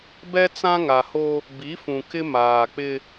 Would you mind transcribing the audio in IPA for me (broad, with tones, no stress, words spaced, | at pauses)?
bɛ˦t͡sã˦ŋa˨ho˦ | bi˨˦fũ˨ kɪ˦maː˨k͡pɪ˦